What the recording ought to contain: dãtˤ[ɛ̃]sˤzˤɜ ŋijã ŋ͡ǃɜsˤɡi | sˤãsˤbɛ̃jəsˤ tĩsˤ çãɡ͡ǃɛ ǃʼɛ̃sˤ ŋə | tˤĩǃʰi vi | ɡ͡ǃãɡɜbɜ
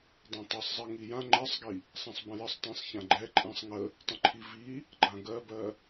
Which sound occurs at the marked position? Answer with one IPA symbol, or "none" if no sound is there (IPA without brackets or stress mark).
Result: ɛ